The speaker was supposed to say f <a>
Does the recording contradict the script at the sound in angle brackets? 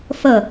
yes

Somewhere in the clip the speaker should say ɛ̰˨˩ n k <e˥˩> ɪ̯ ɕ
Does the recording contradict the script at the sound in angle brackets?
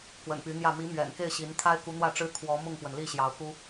no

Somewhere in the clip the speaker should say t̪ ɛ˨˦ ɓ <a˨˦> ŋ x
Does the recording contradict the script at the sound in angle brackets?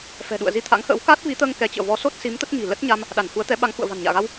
no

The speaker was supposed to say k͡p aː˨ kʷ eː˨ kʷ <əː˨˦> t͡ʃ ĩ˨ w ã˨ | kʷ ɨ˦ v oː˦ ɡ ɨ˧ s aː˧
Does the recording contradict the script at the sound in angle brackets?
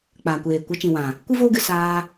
yes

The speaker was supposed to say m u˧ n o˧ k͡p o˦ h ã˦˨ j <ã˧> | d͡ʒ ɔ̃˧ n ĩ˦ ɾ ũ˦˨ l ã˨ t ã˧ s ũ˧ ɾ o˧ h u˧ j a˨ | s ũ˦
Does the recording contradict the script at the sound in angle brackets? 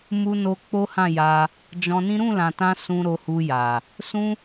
yes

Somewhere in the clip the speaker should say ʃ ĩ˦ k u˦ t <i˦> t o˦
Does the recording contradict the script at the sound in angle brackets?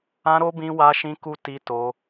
no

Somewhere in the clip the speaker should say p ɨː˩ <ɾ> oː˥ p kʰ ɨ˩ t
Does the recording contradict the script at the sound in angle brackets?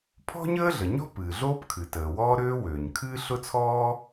yes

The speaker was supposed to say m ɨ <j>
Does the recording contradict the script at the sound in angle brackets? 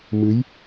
no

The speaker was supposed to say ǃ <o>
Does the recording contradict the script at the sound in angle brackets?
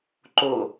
no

